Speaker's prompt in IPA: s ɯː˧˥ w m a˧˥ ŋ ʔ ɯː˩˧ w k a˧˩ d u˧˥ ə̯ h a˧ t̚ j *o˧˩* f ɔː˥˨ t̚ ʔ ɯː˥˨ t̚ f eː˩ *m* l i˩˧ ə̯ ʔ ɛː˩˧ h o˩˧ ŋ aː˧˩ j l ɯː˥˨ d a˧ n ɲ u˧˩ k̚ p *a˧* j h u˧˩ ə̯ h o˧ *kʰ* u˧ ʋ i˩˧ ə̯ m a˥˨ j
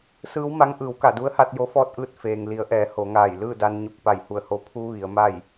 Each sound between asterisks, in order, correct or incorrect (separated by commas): incorrect, incorrect, incorrect, incorrect